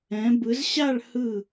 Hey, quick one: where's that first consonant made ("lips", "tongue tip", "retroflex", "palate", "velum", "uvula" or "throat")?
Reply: lips